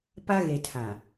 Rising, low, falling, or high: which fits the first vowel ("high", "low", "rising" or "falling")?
high